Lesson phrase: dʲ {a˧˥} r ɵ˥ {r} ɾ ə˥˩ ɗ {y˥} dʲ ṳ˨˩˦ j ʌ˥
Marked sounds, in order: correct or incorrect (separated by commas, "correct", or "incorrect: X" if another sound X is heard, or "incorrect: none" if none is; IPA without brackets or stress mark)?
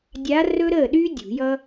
correct, incorrect: none, correct